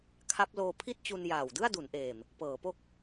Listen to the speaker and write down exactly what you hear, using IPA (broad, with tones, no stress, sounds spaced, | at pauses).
kʰ a˦˥ p̚ l oː˧ pʰ i˥˩ t̚ t͡ɕ u˧ n j aː˨˩ w d ɯ˥˩ a̯ d u˩˦ n ʔ eː˨˩ m | p ɤː˩˦ p o˥˩ k̚